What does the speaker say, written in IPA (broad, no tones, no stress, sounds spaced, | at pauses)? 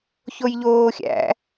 ç o j ʎ oː xʲ æ̰